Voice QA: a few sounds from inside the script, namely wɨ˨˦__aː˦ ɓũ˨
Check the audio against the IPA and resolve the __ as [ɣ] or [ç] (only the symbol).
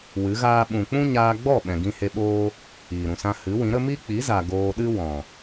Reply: ɣ